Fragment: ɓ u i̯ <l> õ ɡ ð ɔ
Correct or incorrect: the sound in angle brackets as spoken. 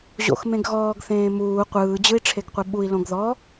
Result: correct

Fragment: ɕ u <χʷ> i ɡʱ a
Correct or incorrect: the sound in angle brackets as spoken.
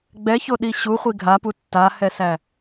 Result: correct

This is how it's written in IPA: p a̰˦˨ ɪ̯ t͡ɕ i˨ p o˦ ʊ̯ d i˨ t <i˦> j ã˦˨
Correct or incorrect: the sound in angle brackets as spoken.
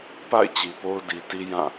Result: correct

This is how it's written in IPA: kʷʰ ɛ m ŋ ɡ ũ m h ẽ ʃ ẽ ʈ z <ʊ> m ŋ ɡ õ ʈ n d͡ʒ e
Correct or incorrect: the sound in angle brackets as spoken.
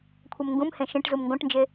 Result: incorrect: u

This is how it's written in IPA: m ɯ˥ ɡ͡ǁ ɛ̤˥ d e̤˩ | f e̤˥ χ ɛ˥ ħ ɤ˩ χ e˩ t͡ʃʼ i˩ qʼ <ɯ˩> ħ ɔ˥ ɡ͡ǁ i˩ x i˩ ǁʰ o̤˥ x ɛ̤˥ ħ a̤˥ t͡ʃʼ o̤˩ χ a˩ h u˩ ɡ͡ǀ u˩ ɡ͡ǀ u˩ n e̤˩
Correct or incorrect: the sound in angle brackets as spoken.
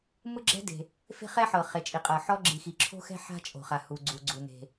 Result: incorrect: ɤ˩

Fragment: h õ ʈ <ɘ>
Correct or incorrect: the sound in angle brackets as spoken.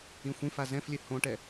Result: incorrect: ɛ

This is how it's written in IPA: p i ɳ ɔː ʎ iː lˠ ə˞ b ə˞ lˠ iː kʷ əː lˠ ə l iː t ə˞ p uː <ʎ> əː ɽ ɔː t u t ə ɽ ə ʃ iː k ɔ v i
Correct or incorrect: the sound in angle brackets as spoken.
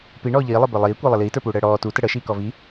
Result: incorrect: ɽ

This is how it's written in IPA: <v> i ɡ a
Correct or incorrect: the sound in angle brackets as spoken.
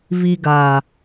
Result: correct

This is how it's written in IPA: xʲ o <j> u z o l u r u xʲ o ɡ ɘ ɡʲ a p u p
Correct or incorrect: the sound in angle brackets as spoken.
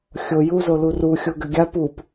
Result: correct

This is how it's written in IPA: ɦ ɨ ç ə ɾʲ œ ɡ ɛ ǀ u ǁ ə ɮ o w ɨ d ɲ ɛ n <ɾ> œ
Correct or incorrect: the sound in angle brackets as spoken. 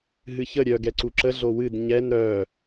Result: correct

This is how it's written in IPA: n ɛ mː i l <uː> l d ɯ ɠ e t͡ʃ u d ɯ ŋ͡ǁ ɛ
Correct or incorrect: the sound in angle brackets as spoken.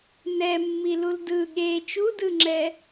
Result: incorrect: u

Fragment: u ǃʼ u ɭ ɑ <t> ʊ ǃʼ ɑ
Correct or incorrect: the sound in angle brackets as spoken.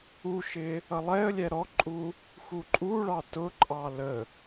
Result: correct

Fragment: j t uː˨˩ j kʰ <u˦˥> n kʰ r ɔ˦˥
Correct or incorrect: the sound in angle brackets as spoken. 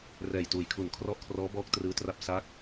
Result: incorrect: u˨˩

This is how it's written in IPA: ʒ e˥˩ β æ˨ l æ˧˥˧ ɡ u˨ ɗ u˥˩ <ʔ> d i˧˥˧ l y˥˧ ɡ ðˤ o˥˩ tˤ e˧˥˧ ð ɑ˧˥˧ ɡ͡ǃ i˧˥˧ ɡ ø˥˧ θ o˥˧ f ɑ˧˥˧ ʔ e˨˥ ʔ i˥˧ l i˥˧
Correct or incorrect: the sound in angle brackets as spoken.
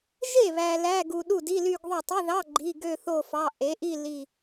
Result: incorrect: none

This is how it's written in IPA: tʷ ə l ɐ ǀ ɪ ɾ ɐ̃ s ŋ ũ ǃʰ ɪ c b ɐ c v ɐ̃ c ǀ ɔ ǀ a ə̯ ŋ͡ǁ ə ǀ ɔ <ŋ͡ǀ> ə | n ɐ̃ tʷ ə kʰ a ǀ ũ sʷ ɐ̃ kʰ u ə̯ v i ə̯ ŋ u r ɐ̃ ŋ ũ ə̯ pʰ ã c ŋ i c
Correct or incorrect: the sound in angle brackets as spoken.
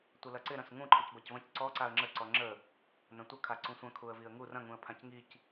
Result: incorrect: ŋ͡ǁ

